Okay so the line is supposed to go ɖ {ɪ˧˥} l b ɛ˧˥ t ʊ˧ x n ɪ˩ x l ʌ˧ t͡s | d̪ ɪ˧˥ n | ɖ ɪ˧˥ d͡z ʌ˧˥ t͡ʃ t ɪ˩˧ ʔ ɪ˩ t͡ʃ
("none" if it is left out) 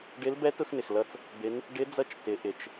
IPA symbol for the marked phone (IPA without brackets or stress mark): ɪ˧˥